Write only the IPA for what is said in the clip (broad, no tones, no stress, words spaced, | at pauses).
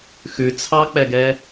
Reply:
xʉ t͡sʰɑk͡pɛɡɛ